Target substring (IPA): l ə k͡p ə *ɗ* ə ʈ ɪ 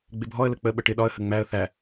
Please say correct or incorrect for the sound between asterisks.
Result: incorrect